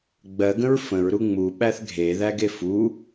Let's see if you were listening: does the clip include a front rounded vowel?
no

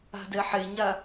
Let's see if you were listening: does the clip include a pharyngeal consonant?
yes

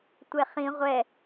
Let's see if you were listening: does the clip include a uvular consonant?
yes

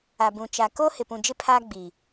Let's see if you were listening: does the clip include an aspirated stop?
yes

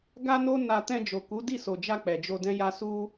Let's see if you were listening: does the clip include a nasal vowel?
yes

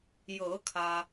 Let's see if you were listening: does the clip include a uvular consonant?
no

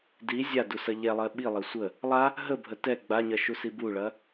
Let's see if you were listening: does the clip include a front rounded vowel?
no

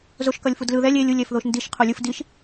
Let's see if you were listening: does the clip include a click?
no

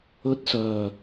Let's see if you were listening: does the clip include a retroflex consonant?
no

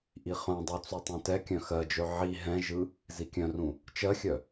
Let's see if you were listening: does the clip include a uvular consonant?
yes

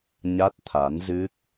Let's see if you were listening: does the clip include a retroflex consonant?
no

